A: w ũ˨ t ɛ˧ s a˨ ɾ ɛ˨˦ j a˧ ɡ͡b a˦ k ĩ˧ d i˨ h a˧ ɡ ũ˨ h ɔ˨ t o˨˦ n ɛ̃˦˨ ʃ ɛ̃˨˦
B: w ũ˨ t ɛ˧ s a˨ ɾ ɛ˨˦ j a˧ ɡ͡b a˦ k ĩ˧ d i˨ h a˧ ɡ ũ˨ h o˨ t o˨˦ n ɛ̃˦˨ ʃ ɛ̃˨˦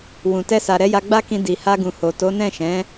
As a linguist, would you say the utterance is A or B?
B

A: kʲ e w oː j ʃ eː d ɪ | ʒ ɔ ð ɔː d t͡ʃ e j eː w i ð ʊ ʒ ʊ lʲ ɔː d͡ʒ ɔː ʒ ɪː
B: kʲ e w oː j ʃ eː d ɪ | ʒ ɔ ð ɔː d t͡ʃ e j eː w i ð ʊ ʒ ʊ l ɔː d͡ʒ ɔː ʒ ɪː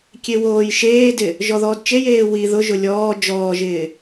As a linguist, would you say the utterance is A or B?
A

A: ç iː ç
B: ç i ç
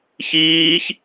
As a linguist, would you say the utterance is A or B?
A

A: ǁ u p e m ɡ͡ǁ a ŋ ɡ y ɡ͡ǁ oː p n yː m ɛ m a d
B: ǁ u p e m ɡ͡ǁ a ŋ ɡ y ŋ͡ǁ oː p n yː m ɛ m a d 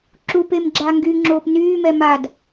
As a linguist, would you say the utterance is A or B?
B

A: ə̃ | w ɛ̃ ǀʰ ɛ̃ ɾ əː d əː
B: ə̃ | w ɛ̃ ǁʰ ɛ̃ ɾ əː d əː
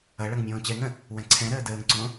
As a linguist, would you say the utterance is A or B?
A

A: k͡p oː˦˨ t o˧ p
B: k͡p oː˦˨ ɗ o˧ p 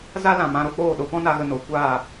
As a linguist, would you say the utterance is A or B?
B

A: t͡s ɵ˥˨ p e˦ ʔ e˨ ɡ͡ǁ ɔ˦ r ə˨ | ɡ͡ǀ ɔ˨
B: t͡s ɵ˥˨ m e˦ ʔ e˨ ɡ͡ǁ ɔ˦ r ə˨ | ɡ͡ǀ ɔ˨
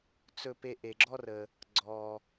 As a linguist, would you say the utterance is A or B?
A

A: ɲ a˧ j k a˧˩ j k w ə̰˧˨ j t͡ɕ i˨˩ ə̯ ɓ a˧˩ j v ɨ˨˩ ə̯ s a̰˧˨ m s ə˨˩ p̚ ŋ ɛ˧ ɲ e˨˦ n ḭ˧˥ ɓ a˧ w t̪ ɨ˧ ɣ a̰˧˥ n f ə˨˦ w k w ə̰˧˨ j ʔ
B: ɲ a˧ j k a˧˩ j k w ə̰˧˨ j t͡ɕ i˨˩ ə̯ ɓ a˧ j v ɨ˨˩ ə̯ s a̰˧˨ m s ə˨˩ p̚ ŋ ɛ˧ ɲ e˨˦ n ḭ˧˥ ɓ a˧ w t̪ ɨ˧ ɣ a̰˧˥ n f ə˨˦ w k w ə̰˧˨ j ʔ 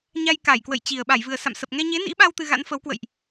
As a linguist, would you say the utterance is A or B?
A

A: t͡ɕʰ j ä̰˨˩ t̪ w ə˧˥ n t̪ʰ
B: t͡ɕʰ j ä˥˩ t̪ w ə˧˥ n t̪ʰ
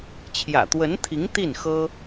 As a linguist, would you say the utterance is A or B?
A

